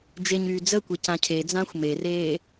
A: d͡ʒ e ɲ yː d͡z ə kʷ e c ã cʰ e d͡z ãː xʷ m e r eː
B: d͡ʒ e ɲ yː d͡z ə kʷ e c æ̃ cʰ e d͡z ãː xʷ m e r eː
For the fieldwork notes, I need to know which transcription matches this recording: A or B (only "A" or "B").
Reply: A